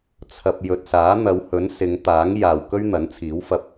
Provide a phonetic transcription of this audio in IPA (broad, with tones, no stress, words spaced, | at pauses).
t͡sʰɐ˧p̚ jɵ˨t̚saː˨˥n̪ɐ˨˧whɵ˨˥n sɪ˨˧ŋt̪aː˨˥ŋ jaː˨w kɵ˥ɥn̪ɐ˨˥nt͡sʰiː˨˥w fɐ˧p̚